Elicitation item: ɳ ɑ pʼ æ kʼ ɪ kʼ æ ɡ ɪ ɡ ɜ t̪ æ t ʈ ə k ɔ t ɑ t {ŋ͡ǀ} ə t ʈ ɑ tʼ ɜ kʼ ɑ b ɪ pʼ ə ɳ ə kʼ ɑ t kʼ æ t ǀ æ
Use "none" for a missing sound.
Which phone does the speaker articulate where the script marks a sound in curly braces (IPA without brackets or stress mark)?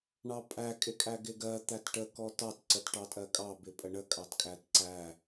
ǀ